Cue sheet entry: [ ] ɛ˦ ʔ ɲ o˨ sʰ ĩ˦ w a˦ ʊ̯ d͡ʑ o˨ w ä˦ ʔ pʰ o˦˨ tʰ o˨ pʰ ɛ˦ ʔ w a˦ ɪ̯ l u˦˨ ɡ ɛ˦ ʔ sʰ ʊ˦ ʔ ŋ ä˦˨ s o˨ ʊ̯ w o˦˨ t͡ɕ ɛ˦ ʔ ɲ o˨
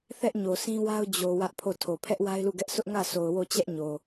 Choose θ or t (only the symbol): θ